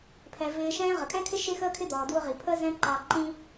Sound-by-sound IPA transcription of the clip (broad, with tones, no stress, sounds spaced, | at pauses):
pʰ ɛ˩ v ɪː˧ ʃ ɛ̃ː˥ ʁ ə˩ kʼ ɛ̃˥ kʰ ɪ˥ ʃ ɪ˥ x əː˥ kʰ ɪ˥ d̪ ɔː˩ d w ʊ˥ ʁ i˩ pʰ əː˥ z ɛ̃˥ ǃ ɑ˧ ǃ ĩ˥